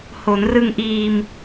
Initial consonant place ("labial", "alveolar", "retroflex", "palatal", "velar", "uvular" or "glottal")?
glottal